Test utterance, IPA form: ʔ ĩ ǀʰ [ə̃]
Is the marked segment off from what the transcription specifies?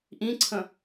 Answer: no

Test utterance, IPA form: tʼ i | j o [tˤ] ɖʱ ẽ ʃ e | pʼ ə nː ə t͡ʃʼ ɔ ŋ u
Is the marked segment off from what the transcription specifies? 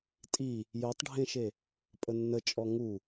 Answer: no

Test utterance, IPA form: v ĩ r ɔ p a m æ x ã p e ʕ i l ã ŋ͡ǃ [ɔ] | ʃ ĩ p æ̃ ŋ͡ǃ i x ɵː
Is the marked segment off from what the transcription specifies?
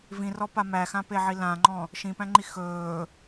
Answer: yes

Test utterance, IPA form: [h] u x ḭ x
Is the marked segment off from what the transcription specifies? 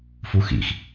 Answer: yes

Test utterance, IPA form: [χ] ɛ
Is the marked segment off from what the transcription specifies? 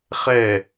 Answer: no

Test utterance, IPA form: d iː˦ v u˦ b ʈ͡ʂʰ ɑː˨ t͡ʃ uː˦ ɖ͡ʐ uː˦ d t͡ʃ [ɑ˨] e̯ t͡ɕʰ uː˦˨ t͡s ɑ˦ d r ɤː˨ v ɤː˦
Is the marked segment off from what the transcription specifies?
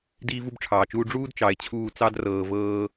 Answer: no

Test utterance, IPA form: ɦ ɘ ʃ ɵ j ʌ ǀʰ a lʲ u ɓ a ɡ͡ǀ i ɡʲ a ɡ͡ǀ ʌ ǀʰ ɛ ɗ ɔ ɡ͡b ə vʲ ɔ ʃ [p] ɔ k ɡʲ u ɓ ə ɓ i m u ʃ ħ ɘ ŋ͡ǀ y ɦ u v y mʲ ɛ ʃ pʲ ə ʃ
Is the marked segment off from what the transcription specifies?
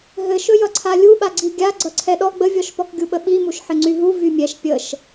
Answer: no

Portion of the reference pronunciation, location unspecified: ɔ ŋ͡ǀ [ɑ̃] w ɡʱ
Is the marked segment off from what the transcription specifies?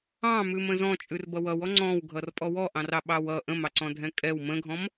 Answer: yes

